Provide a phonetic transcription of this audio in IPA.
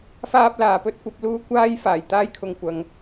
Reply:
f aː˥ p̚ l aː˨ p ɵ˥ t̚ kʷ ɐ˨˥ p̚ l uː˥ kʷ aː˥ j f aː˨˩ j t̪ aː˥ j kʰ ʊ˨ ŋ kʷ ɐ˨˧ ŋ

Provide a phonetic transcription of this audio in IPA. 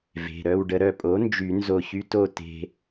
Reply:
v e̤˩˧˩ ɾ œ˥˨ w ɖ ə˧ ɾ œ˧˩ pʼ o˩˥ n d͡ʒ y˨˩˦ n z o˧˩ ç y˧ t o˥˨ t e̤˧

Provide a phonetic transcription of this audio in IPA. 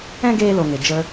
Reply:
ɛ̃˦ ɡ eː˧ l o˨ ŋ e˨ d͡ʒ ə˧

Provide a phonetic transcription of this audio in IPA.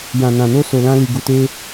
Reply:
j ã˨ n ã˨ n o˧ s o˨ l ã˧ l i˨ ɡ u˨ t e˧

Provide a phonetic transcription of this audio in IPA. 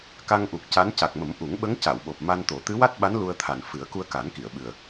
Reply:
k a˧ ŋ ʔ u˨˩ k̚ c a˧˥ n c a˨˩ k̚ m ə˨˩˦ m ʔ u˨˩˦ ŋ ɓ ə˧˥ ŋ c a˨˩˨ w ɓ o˨˩ p̚ m a˧ n t̪ o˨˩˦ t̪ ɨ˧˥ w a˦˥ t̚ ɓ a˧˥ n l u˧ ə̯ t̪ʰ a˨˩ n f ɨ˨˩˦ ə̯ k u˧ ə̯ k a˨˩˦ n k i˨˩˨ ə̯ ɓ ɨ˨˩ ə̯

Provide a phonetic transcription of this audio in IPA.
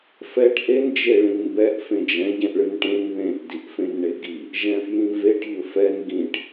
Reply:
f ɛ ʈ ʔ e n d͡ʒ e ɭ ĩ n b ɛ ʔ f ẽ d͡ʒ ɛ̃ ɟ ɛ̃ ʔ ɭ ɨ n ʈ ẽ n ð ẽ ʔ d i ʔ f ẽ n ɳ e ɡ i | ʒ ɛ̃ f j ĩ v e ʈ ʎ ɵ f ɛ n ɡ ĩ ʈ

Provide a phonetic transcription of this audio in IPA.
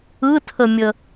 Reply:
ɯ tʰ ə mʲ ə

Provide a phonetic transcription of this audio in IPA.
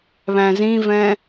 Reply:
β æ̃ z ĩ v ɛ̃

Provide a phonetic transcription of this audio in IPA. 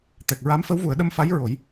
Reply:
t̪ ɛ˨˩ k̚ ɹ a˧˥ m f ə˧˥ w v u˨˩˦ ə̯ ɗ ə˧ m f a˧˥ j ɹ o˨˩˦ j

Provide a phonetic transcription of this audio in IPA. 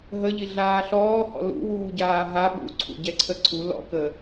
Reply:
ɦ ə ʎ i ɮ aː ɬ ɔː h ɔ̰ l ṵ w uː ɟ aː ɦ a ɓ ṵ ǀʰ ṵ ɟ ɛ ǀʰ ə ǀʰ u l ɔ̰ k ə

